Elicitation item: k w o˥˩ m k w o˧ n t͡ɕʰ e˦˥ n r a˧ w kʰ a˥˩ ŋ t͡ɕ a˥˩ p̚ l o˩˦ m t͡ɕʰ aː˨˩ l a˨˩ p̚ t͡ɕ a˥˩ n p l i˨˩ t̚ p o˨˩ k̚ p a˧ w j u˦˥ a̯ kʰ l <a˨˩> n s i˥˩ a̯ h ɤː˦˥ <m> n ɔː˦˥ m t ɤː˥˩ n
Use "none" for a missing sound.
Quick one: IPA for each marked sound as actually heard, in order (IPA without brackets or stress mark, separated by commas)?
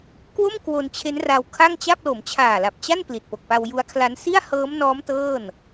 a˦˥, m